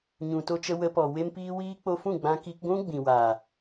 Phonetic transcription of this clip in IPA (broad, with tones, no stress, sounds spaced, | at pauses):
ɲ ũ˨ t o˧ t͡ʃ ə˧ w ə˧ p ɔ˨ w e˦ m p iː˦ w iː˦ k͡p o˧ f ũ˦˨ ɡ͡b ã˧ k i˧ k ɡʷ ũ˦ ɡ͡b ĩ˨ w a˨